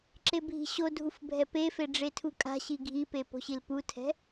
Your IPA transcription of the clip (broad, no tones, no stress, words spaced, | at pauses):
ǁebʱi̤ɕodʱuf bʱɛpefe ɖ͡ʐetʰukʼa̤ɕi ɡʱipe po̤ɕilputʰɛ̤